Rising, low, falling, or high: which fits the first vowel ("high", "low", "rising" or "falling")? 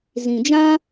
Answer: low